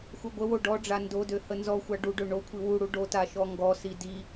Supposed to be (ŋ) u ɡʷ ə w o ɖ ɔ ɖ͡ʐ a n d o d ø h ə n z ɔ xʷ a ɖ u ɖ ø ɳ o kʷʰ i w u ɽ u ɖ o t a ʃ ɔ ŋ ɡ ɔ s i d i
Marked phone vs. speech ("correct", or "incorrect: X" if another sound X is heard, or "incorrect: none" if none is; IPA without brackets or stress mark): incorrect: x